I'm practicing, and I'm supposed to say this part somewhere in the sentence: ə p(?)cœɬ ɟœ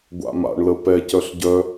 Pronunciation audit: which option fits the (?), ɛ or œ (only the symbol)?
ɛ